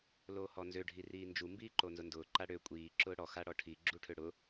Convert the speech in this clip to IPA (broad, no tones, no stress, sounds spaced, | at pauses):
l oː h ɔ n z ø ɖʱ i r iː n d͡ʒ u m b iː ǃ o n z ʊ n d ʊː ǃ a ɽ ø kʷʼ iː ǁ ʊː ɽ ɔ x a ɽ ɔ ʈʰ i ɡ͡ǁ u ʈʰ ø ɽ ʊ